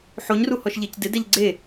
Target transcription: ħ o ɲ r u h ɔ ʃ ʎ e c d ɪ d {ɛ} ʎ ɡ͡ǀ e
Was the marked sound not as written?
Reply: no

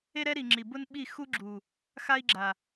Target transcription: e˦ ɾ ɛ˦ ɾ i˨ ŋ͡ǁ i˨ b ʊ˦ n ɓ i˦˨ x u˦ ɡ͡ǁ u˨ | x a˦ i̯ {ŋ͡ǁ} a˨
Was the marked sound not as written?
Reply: yes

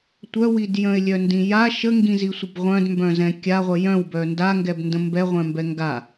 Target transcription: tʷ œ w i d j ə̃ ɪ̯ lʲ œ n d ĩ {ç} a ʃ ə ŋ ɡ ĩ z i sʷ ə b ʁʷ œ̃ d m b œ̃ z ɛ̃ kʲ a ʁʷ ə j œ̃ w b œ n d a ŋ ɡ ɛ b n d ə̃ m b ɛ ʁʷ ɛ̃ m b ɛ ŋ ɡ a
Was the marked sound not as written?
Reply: yes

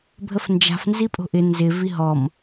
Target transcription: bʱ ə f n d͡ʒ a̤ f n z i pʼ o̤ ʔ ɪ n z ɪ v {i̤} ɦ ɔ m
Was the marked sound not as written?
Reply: yes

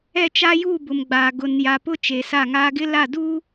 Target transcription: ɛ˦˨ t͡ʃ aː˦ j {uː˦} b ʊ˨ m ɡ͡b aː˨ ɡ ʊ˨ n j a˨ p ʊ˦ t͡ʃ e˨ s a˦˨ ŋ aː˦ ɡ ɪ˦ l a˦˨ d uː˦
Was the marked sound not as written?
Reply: yes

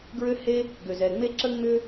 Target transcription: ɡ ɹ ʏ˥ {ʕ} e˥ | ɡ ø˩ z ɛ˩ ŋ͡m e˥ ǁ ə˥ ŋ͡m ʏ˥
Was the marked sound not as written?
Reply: yes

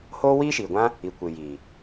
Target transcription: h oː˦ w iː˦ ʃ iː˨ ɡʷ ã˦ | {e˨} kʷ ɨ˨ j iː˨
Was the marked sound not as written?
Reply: yes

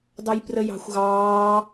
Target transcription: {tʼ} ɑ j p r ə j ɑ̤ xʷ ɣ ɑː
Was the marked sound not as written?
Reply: yes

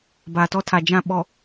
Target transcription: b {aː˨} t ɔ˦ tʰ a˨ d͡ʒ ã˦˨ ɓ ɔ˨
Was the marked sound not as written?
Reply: no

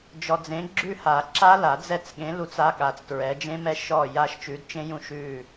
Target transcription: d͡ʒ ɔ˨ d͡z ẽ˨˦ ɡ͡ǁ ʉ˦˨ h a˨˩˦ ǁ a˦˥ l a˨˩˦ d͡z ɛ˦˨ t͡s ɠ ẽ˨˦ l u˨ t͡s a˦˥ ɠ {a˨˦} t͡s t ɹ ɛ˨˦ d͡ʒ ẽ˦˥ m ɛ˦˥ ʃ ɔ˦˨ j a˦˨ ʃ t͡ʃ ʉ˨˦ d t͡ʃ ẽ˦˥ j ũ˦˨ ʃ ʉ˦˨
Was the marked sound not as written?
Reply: no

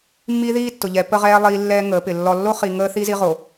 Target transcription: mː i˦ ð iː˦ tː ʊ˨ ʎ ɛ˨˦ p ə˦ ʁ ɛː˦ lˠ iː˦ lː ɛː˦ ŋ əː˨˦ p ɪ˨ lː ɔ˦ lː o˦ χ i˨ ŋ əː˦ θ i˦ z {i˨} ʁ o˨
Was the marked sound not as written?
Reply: yes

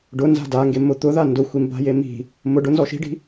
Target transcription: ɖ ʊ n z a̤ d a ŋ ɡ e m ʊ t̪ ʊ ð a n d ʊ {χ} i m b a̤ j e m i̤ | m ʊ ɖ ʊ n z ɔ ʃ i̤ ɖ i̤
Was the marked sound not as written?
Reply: yes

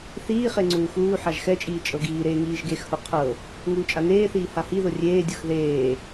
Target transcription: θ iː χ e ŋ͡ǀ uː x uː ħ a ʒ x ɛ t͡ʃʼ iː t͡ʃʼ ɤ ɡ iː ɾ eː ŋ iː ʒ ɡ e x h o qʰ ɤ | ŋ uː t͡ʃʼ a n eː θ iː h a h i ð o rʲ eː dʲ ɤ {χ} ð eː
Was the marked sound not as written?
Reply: yes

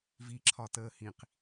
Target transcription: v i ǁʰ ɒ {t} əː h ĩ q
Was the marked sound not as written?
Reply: no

